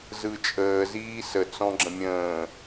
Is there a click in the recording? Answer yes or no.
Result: yes